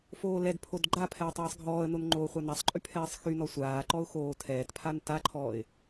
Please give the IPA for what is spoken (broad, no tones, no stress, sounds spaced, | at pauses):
f oː l ɛ d pʰ o d ɡ͡ǃ a pʰ ɛː tˤ ɛː sˤ ɡʱ ɔː ə̯ n o n ŋ͡ǃ oː χʷ a n a sˤ ǃʼ y pʰ ɛː sˤ x y n ɔ sʷ aː ǃ ɔ ʊ̯ x oː tʰ ɛː t pʰ a n t a ǃʰ ɔː ɪ̯